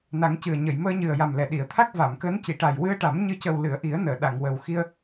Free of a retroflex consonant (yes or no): no